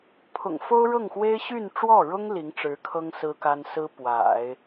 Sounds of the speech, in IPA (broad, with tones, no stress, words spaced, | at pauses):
pʰʊ̰˨˩ŋfo˥ʊ̯ɻɤ˥˩ŋxwe˥ɪ̯ ɕy˥˧nʈ͡ʂwɔ˥˩ɻʊ˥ŋ li˧˥ŋʈ͡ʂɻ̩˧˥kʰɤ˥ŋ sɹ̩˥ka˥n sɹ̩˥pwa̰˨˩˦ɪ̯